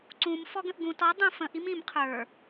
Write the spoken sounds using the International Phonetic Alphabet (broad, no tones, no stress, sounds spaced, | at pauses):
ǀ ũ m f ɔ ɡ ə̃ ʔ ɡ ũ t ɔ dˤ ũ f ə̃ ʔ i m ĩ m qʰ ə˞